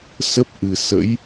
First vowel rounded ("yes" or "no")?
no